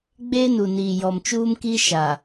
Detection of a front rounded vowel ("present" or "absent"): absent